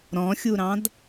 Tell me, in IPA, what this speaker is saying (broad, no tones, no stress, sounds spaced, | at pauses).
ɾ ɔ̃ xʲ u ɾ ɑ̃ d